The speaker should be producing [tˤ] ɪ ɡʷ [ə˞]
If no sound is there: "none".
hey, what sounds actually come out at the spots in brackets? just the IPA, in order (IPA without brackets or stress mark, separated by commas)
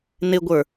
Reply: n, ə˞